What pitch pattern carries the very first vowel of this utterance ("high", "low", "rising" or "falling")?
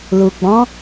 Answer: low